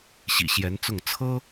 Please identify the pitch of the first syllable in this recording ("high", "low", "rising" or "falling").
low